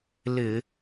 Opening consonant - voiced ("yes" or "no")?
yes